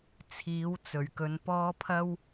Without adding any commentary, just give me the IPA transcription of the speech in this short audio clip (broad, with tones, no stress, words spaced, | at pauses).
t͡sʰiː˨˥wt͡sɵ˨˩ɥ kɵ˨˧npɔː˥ pʰɐ˥w